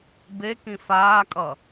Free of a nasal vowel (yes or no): no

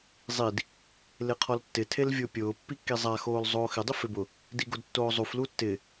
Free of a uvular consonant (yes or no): no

